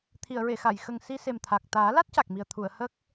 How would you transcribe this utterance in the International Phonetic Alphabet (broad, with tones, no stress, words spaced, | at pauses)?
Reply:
t̪ʰi˨˩˨ə̯ɹe˨˩˨xa˨˩˨jxə˨˩ŋ si˧se˨˩mt̪ʰa˨˩k̚ t̪aː˨˩˦la˦˥t̚ca˨˩k̚mi˨˩ə̯ t̪ʰu˨˩˨ə̯hə˦˥k̚